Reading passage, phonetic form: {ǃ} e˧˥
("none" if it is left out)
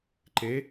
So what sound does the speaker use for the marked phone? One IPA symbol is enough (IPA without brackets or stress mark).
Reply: ǃ